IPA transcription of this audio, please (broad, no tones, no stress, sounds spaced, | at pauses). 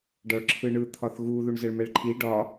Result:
ɖ ɒ ɭ ǁʰ ɯ ɳ ɯ t̪ʰ ɒ θ ɣ u ð u ɳ z ə ɭ m ɛ ɭ ǃʰ i ɖ ɒ